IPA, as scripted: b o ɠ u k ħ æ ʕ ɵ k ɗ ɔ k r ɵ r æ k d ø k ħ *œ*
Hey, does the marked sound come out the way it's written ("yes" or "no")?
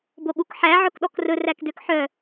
yes